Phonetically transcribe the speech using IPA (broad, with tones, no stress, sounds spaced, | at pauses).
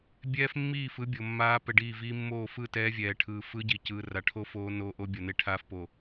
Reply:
bʲ ɛː˦ f mː iː˦˨ f ɯ˦ bʲ o˨ mː aː˦ p ɛ˨ ɖ iː˦˨ v iː˦ mː oː˦˨ f ɯ˦˨ t ɛː˦ vʲ ɛː˨ ʈʰ ɯː˨ f ɯ˦ ɟ i˨ c ɯː˨ r a˨ ʈʰ o˦ f oː˦ n oː˦ ʔ o˦ bʲ ʌ˨ n e˦ ʈʰ aː˦ f p o˨